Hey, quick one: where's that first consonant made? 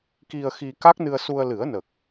velum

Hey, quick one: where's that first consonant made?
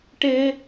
retroflex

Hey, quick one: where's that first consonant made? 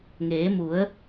velum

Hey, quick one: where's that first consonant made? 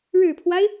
retroflex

